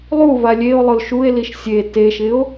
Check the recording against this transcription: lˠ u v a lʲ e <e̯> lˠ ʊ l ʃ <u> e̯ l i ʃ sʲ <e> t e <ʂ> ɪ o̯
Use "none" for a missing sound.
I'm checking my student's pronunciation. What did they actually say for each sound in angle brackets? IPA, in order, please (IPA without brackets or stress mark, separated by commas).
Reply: o̯, u, e, ʃ